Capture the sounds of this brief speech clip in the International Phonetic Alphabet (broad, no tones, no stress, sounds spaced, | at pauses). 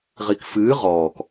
ʁ i k f ɨː ʁ ɔː k